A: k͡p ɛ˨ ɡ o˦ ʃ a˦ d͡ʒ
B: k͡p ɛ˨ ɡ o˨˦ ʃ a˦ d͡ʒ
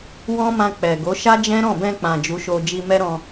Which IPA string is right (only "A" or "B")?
B